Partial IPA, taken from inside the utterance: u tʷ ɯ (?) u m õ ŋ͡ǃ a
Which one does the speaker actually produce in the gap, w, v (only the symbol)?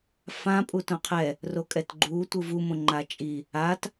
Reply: v